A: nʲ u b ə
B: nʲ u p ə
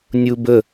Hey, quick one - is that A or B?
A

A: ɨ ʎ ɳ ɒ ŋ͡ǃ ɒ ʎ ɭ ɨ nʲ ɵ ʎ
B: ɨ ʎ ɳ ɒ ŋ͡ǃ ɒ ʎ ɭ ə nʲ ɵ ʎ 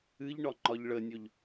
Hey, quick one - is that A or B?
B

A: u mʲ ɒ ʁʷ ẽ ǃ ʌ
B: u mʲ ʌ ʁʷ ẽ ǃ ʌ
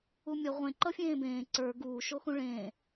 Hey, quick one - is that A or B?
B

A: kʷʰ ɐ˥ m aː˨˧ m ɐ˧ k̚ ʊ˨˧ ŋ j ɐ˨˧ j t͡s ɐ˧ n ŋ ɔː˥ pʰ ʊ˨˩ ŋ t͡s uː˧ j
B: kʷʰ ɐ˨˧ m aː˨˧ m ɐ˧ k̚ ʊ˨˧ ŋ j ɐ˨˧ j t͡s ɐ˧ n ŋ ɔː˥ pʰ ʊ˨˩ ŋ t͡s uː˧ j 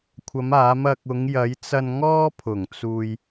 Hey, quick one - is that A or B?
B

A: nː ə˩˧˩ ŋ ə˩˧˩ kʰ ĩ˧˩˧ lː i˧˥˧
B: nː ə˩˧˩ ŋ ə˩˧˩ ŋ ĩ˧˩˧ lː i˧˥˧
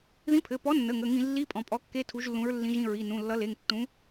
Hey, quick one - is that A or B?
B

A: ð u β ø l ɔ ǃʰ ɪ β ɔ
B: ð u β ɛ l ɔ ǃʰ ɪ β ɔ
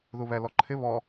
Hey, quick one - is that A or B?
B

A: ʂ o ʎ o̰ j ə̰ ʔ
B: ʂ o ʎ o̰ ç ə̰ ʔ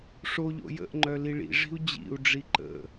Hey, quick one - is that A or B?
A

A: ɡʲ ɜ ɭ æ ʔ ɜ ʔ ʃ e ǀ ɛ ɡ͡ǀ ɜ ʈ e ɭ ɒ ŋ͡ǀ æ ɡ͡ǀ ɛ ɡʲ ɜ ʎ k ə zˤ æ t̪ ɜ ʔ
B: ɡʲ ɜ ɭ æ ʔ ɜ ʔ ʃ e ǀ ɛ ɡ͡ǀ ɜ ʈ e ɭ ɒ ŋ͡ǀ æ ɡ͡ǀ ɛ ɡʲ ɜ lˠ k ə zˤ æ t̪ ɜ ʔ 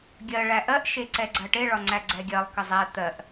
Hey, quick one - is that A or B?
B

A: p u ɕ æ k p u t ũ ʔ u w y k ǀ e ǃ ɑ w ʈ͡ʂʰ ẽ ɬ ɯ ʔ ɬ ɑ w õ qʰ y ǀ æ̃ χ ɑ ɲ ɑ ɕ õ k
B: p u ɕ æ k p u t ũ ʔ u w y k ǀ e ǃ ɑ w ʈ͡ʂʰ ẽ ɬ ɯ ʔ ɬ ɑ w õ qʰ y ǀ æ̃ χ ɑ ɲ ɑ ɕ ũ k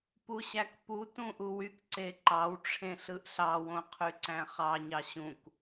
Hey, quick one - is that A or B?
B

